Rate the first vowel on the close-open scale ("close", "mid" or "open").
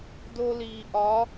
mid